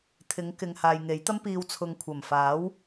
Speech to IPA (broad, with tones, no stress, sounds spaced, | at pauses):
t̪ʰ ɪ˨˧ ŋ k ɪ˨ ŋ h aː˨ j ŋ e˨˥ j t̪ ɐ˥ m p iː˧ w t͡sʰ ʊ˨ ŋ kʷʰ ɐ˨˩ m f aː˨˥ w